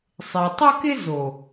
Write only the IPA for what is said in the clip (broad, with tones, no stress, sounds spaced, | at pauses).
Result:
sˤ ɪ˨ tˤ ə˦ k ɪ˦ z o˨